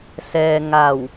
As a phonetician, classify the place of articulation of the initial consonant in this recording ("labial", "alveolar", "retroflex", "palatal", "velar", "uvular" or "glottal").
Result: alveolar